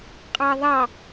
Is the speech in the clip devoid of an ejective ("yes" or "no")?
no